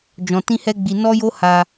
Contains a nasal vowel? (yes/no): yes